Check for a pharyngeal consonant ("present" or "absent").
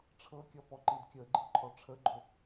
absent